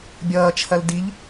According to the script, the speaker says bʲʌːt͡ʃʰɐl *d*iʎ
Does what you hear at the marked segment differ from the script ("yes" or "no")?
no